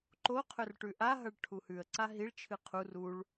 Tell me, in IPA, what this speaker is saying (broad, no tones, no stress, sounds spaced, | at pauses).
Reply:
ǃ o qʰ ɵ r ʈ ʉ ʔ a ɦ ɐ ɭ ʈʰ u h ʉ ə̯ ǀ a ɦ i ɭ t͡ʃʰ ɨ qʰ u r u ɭ